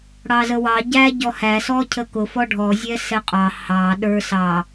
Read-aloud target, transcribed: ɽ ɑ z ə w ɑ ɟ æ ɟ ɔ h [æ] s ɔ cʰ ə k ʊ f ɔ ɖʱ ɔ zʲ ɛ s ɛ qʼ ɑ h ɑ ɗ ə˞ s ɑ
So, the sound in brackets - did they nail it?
yes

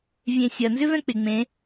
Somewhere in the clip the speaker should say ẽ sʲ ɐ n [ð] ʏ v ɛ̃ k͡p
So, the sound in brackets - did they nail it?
no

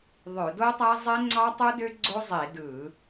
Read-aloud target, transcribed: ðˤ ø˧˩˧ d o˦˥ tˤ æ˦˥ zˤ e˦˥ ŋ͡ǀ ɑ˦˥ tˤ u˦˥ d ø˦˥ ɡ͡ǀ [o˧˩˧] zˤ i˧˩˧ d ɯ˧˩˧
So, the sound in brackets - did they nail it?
no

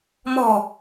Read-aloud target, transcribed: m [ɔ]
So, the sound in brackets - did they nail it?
no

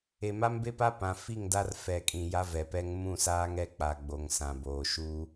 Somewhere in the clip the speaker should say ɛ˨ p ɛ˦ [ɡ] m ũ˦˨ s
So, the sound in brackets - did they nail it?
no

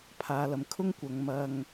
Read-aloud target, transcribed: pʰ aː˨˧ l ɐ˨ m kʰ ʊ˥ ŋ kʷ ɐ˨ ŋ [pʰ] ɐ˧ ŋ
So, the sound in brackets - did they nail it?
no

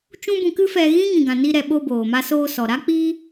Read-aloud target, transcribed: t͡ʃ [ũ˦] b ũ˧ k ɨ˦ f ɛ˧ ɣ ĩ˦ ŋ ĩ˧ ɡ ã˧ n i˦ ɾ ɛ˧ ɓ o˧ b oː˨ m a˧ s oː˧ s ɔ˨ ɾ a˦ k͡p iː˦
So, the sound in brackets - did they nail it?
yes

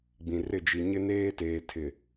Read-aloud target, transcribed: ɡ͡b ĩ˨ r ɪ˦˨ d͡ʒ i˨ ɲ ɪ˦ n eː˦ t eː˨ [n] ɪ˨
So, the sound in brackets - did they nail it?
no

